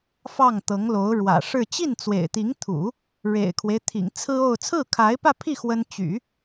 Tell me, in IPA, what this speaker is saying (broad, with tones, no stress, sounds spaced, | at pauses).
f ɑ˥˩ ŋ t̪ ɤ˧˥ ŋ l o˧˥ ʊ̯ ɻ w ä̰˨˩ ʂ ɻ̩˥˧ t͡ɕ i˥˩ n t͡s w ḛ˨˩ ɪ̯ t̪ i˧˥ ŋ t̪ʰ ṵ˨˩˦ | ɻ ḛ˨˩ ɪ̯ kʰ w e˦ ɪ̯ t̪ʰ ḭ˨˩ ŋ t͡sʰ ɹ̩˥ o˥˧ ʊ̯ t͡sʰ ɹ̩˥˩ kʰ a˧˥ ɪ̯ p ä˥˧ pʰ i˥˩ x w ə˥ n t͡ɕ y̰˨˩˦